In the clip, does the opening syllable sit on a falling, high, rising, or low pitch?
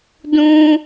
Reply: high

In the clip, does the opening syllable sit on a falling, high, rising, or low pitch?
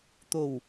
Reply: low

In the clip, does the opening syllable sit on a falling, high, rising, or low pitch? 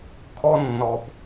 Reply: high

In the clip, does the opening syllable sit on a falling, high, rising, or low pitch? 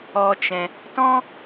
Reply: high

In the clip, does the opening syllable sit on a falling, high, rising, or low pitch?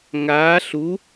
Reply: rising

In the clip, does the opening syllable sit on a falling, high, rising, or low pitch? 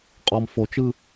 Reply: low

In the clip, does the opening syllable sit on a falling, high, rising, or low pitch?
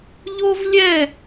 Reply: high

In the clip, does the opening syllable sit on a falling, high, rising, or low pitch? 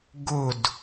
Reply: falling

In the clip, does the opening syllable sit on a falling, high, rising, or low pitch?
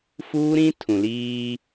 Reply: high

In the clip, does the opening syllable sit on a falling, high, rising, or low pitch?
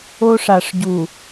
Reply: high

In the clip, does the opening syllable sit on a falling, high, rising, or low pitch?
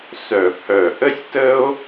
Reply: low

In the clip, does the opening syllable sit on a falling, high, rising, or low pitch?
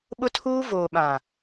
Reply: high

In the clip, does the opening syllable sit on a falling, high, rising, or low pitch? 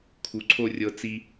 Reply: low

